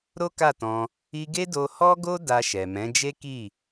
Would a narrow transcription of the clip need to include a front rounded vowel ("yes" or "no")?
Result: no